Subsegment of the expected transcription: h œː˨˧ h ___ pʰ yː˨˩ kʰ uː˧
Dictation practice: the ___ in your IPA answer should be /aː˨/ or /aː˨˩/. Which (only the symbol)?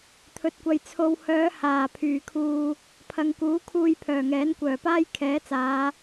aː˨˩